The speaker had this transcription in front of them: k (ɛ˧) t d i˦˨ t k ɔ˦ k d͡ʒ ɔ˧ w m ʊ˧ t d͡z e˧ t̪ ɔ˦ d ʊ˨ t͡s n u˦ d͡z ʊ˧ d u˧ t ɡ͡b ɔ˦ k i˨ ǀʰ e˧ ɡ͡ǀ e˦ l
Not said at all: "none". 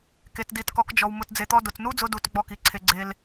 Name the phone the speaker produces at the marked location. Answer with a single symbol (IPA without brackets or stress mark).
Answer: e˧